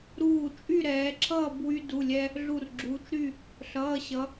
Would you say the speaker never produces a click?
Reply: no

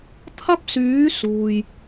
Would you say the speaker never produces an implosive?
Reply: yes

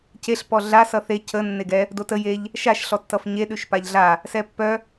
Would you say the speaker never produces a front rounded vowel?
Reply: no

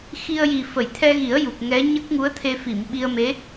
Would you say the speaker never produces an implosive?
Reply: no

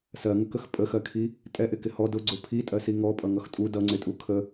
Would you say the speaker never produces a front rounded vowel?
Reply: yes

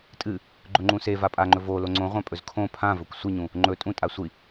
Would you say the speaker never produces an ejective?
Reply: no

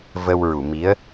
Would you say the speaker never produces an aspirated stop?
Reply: yes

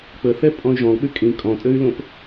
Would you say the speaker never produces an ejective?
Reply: no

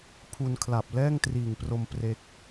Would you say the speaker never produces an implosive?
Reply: yes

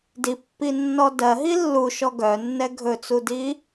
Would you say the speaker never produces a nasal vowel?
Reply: yes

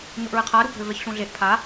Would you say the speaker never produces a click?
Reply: yes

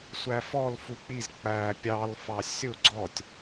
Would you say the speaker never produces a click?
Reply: no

